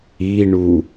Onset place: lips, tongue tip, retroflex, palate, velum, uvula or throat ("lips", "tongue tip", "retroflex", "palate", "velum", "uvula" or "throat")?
retroflex